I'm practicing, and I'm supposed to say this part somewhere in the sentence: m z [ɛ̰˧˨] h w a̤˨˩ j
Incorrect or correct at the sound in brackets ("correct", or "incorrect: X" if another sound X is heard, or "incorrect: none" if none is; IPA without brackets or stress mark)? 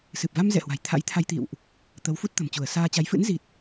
correct